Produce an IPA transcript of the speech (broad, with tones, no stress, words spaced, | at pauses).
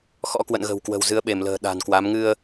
xɔ̰˧˥kwə̰˧˨nɣə̤˨˩wkwə̤˨˩w zɨ˨˦ə̯ɓe˧˩mlə̤ː˨˩ ɗa̤˨˩nkwa˨˦m ŋɨ˧ə̯